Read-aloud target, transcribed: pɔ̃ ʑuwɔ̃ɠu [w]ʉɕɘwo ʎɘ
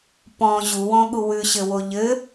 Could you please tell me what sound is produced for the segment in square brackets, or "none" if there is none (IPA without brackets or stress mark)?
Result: w